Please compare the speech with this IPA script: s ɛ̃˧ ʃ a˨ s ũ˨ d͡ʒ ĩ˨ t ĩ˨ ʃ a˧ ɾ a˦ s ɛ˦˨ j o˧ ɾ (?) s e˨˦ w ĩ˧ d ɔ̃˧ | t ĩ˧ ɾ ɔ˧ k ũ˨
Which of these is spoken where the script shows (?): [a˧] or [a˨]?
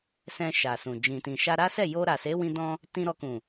a˨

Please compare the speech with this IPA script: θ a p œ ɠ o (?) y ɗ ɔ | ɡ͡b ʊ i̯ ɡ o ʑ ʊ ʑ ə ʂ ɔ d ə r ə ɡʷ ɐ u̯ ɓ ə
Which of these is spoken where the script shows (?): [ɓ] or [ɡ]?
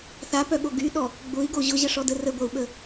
ɡ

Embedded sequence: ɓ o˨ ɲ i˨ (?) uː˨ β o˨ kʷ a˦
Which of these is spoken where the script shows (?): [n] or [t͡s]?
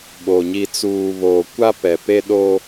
t͡s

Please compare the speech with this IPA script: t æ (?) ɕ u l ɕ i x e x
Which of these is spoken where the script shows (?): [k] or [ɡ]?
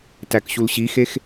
k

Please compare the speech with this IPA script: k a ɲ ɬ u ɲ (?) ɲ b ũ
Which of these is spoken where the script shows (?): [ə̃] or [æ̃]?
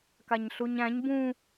æ̃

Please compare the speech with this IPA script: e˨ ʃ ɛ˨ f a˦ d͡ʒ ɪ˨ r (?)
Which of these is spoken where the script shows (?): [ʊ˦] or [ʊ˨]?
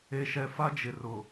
ʊ˨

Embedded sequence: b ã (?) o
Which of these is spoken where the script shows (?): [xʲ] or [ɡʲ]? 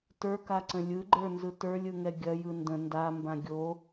ɡʲ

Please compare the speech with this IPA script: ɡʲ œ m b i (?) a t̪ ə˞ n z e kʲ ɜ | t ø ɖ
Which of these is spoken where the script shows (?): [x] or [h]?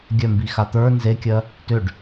x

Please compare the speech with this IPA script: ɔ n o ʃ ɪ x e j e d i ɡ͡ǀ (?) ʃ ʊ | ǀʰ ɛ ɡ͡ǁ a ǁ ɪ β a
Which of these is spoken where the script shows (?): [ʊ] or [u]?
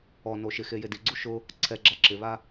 u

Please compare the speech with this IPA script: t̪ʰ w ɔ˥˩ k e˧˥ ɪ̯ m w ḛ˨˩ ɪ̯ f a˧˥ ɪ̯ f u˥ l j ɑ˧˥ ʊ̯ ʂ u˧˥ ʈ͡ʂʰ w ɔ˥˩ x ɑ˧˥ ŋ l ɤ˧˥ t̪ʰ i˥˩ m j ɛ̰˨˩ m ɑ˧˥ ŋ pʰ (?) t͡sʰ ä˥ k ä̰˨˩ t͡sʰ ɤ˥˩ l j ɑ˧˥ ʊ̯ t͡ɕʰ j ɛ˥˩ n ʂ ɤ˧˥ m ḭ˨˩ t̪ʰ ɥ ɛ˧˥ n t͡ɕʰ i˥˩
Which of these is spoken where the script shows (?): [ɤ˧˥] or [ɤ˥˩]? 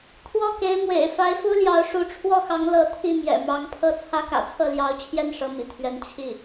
ɤ˥˩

